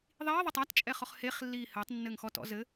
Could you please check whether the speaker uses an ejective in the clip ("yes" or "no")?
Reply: yes